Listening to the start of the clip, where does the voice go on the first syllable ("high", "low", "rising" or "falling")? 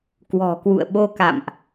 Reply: low